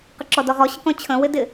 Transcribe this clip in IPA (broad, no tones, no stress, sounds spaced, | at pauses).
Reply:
q ɪ ǁ ɔ d ɔ ʁ ɔ ɕ ə k ɔ̃ t͡ɕʰ ə̃ w ɪ d ɪ